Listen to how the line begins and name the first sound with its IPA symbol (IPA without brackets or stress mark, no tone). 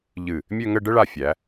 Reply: ʎ